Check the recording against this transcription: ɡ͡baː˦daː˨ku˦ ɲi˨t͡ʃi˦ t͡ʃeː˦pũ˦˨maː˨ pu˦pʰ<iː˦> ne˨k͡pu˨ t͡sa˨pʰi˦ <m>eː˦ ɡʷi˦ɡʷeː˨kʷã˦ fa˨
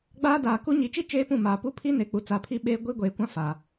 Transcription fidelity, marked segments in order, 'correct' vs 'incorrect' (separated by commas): incorrect, incorrect